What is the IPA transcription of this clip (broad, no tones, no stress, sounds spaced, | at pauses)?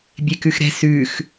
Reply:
bʲ e k ʉ x ɾ ɛ̤ s ʉ x